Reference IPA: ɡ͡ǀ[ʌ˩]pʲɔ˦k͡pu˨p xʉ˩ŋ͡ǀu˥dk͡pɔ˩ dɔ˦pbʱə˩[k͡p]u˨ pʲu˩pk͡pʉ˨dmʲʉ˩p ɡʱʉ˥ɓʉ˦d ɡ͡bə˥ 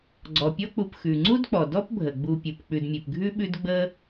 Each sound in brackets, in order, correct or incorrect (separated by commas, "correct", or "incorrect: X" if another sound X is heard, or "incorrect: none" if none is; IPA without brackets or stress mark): incorrect: ɔ˩, incorrect: ɡ͡b